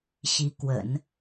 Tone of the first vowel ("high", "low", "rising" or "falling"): rising